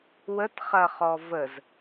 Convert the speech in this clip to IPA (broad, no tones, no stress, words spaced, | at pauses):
wətχɐ χɔvəz